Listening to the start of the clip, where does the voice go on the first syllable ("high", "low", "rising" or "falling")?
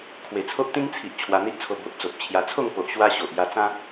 low